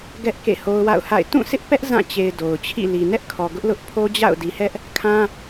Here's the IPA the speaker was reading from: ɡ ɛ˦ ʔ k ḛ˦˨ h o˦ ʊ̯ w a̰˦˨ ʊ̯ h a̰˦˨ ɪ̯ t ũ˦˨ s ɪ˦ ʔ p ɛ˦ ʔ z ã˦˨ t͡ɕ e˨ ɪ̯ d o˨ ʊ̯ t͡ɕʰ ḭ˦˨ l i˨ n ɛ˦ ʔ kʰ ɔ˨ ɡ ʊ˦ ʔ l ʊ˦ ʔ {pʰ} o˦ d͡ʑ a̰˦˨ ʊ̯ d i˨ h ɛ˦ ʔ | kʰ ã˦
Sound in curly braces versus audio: correct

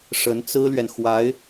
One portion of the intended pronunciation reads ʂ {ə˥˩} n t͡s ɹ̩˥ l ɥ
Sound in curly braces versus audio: incorrect: ə˧˥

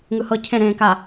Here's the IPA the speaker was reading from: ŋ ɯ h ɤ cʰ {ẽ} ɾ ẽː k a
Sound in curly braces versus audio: correct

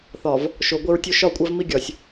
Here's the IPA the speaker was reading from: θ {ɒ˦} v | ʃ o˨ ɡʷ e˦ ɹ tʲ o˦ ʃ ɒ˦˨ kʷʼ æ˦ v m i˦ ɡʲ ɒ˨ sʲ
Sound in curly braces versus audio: incorrect: ɒ˨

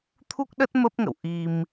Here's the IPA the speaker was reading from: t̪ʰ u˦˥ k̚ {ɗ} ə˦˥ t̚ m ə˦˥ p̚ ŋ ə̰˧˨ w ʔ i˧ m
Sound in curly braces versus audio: correct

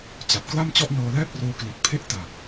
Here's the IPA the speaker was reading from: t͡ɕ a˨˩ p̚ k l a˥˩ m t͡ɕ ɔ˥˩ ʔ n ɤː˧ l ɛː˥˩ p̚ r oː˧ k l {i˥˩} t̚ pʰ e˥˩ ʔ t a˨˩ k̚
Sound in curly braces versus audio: incorrect: i˨˩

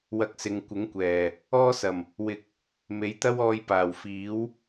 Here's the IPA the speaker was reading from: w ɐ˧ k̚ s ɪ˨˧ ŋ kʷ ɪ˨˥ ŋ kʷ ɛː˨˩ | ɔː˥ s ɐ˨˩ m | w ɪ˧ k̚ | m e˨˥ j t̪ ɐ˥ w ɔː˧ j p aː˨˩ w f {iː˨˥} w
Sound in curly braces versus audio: correct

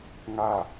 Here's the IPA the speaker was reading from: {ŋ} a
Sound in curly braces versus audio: correct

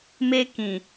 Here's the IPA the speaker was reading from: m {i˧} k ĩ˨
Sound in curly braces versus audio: incorrect: e˧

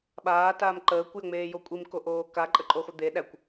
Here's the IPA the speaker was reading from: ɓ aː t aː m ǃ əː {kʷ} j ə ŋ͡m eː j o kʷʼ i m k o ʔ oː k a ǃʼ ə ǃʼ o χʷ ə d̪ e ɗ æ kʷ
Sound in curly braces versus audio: correct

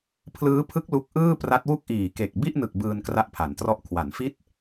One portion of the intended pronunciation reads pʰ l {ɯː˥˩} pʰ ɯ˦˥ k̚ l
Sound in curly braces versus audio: incorrect: ɯː˦˥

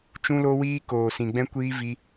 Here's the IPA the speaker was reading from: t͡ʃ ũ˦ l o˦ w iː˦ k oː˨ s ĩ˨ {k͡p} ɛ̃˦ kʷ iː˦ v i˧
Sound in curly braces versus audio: incorrect: ɡ͡b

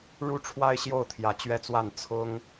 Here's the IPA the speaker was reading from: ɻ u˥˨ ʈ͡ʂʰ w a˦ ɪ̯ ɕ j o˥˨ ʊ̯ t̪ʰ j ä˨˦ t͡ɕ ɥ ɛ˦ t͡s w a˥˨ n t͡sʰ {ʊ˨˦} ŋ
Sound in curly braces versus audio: incorrect: ʊ˦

